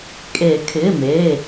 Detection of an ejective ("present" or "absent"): present